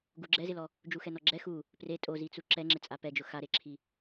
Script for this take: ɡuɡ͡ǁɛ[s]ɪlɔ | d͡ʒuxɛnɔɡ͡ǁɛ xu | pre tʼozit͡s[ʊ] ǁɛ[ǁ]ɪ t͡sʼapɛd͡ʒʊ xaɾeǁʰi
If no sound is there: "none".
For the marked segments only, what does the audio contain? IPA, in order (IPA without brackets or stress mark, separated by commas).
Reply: z, u, ŋ͡ǁ